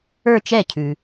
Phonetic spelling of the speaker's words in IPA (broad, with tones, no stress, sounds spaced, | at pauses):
ə˞˥˧ t͡ʃ ɛ˥˩ cʰ ʉ˨